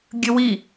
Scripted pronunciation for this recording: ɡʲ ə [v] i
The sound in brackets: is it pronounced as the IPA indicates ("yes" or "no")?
no